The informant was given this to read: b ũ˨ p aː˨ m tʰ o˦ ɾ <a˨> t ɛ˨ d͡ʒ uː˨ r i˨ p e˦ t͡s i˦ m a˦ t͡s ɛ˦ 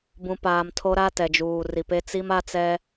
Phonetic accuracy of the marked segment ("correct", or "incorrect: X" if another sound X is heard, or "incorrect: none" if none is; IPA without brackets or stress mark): incorrect: a˦